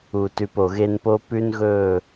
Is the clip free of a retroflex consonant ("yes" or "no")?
yes